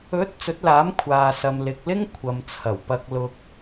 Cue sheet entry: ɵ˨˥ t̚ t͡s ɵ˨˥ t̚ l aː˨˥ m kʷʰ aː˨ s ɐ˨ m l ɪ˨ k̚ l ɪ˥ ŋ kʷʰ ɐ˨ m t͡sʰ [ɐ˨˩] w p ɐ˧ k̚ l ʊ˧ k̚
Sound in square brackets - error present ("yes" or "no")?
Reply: no